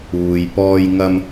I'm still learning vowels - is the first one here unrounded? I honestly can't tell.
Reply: no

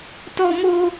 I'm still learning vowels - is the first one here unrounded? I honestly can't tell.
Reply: no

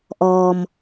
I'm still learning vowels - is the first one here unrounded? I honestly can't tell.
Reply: no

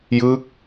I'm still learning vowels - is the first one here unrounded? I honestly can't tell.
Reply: yes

